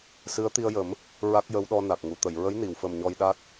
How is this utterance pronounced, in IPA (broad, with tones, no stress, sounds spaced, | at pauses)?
s ɨ˧˥ ə̯ t̪ i˧ ə̯ j ə˨˩˦ m | ɹ a˦˥ k̚ j ə˧˥ w ɗ ɔ˧ n a˨˩ k̚ ŋ u˨˩˨ t̪ ə˨˩˨ j ɹ ə˧˥ j n i˨˩˨ w f ə˨˩ m ɲ ɔ˧ j ɗ a˦˥ t̚